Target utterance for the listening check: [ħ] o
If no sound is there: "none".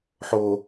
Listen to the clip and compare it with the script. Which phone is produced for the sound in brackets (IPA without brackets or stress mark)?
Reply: ħ